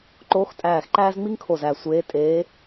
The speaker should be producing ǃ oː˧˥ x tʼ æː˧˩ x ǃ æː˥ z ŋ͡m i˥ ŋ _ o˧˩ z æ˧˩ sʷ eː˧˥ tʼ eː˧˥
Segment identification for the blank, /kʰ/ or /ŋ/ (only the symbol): kʰ